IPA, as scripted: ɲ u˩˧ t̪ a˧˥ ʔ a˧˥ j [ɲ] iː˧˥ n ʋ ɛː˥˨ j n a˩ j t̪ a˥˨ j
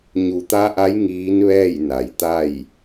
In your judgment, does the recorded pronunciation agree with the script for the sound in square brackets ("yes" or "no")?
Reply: no